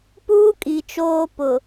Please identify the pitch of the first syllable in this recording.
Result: high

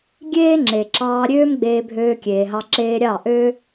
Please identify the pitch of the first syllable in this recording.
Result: high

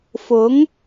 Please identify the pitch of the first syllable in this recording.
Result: rising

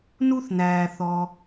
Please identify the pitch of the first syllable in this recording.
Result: high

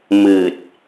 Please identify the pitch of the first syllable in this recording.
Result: low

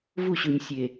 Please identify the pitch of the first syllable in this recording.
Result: falling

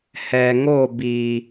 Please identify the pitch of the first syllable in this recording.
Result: low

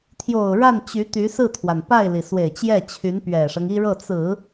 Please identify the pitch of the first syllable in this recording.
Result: low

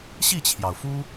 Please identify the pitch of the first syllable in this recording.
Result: falling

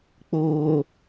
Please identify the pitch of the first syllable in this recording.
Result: low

